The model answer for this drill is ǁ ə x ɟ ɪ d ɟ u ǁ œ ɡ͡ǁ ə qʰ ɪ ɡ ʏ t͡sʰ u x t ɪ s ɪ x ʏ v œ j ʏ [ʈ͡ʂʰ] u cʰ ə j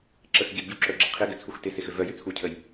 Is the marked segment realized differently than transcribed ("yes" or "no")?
yes